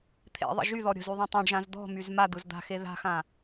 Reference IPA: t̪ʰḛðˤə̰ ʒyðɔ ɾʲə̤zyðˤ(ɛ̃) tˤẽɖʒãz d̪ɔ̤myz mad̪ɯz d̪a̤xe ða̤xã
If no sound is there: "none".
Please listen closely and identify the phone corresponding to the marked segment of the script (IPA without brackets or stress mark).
ẽ